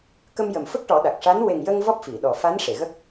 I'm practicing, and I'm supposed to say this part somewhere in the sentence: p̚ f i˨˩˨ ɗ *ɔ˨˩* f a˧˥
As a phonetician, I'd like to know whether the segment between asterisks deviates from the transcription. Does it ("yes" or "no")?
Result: no